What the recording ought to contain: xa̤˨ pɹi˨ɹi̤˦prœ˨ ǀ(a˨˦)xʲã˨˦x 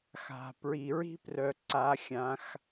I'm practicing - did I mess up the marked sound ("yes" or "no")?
no